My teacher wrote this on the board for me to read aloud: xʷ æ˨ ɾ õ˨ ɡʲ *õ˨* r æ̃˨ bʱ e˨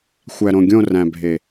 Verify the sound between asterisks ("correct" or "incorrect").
incorrect